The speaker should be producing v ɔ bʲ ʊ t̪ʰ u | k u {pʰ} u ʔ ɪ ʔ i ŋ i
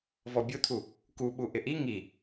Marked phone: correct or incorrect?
incorrect